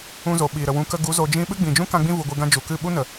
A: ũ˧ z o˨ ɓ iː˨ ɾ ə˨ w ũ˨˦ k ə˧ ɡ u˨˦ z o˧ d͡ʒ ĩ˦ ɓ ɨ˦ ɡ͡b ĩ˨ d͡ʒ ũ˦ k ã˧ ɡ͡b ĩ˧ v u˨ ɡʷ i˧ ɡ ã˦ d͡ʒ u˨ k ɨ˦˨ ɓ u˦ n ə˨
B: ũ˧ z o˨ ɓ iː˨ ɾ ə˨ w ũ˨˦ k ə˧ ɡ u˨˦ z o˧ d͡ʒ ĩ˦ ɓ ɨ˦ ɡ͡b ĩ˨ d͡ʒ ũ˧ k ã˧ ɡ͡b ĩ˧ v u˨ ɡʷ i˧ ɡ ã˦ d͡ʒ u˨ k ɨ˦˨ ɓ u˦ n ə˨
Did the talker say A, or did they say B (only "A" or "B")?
A